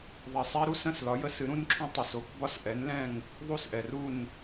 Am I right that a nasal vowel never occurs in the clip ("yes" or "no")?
no